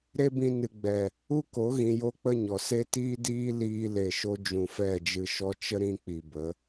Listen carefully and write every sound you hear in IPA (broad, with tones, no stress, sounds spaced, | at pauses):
ɾ e˦ b ĩ˧ n ɨ˨ ɡ͡b ɛ˨ | u˦ k o˨˦ ɣ ĩ˧ j o˦ k͡p ə˦ ɲ ɔ˨ s e˦ t iː˦ d iː˦ l iː˦ l e˧ ʃ o˦ d͡ʒ ũ˨ f ɛ˦˨ d͡ʒ ɨ˧ ʃ ɔ˦ t͡ʃ ə˦ ɾ ĩ˧ k͡p i˨ b ə˨˦